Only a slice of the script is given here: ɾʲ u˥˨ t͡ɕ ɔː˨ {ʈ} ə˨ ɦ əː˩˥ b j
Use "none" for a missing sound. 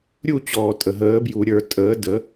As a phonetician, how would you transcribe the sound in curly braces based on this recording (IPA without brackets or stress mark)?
tʼ